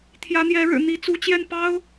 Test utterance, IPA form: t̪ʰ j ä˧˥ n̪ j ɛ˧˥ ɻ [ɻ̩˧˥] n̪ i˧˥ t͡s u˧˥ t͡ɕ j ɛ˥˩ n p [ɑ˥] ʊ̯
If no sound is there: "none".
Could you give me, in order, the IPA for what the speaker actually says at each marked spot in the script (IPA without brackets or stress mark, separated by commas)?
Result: ɻ̩˨˩, ɑ˥